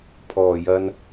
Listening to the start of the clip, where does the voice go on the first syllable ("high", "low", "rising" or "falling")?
low